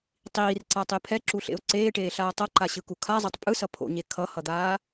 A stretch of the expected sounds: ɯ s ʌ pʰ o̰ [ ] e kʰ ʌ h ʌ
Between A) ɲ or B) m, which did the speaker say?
A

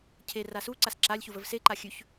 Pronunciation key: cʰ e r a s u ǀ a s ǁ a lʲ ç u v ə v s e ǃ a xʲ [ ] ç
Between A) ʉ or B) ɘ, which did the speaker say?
A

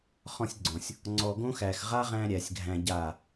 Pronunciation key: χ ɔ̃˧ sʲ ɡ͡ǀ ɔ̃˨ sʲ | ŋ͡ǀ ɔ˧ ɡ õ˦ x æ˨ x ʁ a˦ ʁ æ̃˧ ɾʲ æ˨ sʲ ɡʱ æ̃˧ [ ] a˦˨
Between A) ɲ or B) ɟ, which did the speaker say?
B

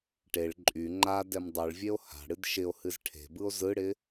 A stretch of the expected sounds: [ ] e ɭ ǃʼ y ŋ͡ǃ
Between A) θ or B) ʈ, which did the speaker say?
B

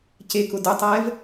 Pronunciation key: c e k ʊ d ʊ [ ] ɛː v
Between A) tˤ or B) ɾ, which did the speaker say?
A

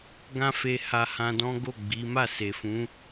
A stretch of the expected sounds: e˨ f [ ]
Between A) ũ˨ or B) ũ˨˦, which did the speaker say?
B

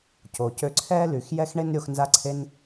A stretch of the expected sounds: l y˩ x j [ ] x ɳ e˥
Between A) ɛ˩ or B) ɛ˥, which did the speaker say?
B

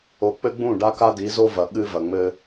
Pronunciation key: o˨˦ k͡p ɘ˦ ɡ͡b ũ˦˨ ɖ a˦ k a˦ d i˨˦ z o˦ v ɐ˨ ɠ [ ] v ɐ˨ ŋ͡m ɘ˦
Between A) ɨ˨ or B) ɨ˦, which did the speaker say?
B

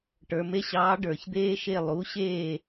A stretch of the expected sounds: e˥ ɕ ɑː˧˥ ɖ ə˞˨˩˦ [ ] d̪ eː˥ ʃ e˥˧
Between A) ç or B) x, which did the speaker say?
A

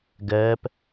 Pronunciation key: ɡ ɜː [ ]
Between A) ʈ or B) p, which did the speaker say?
B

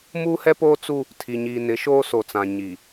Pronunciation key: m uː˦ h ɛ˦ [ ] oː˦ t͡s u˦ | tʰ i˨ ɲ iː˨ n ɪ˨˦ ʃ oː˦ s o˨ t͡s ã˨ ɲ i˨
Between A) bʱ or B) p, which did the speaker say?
B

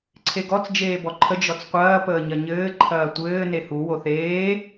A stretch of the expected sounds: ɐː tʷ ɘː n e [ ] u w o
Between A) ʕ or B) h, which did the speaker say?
B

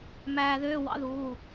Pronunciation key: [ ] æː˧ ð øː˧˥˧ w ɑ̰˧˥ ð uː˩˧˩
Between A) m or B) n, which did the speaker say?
A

